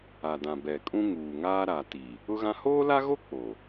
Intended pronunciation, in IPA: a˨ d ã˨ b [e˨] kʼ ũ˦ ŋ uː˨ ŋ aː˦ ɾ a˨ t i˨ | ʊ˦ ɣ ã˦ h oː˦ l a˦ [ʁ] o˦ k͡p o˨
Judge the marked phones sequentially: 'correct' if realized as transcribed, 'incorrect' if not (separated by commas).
incorrect, incorrect